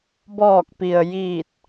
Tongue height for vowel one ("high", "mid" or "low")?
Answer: mid